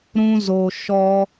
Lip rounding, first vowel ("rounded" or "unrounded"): rounded